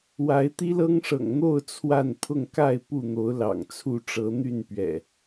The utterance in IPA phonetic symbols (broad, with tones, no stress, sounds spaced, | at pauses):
w a˨˦ ɪ̯ t̪ i˦ l ɤ˦ ŋ ʂ ɤ̰˨˩ ŋ n̪ o˥˨ ʊ̯ t͡sʰ w a˥˨ n pʰ ʊ˥˨ ŋ k a˥˨ ɪ̯ p u˥˨ n̪ o˨˦ ʊ̯ l ɑ̰˨˩ ŋ t͡sʰ u˥˨ ʈ͡ʂ ɤ˨˦ n̪ y˥˨ n p ɥ ɛ̰˨˩